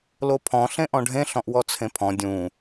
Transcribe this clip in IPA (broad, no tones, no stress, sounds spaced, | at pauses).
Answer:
l o pʰ ɔ̃ ɬ ẽ ʔ ɔ̃ ɖʱ ẽ ɬ ɔ̃ ʔ w ɔ t͡sʰ ẽ pʰ ɔ̃ dʲ ũ